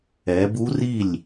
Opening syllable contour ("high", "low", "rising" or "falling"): rising